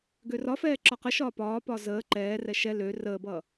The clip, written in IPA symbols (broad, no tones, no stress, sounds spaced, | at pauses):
ɡ ø r ɒ f ɛː ǁ ɒ q ə ʃ ɒː p ɒː p ɒ z əː ǃ ɛː r ɛ ʃ ɛ l ø r əː b ʌː